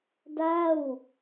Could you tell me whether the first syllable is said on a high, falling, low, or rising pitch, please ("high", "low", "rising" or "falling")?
falling